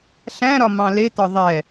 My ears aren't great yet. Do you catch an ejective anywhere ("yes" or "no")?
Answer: no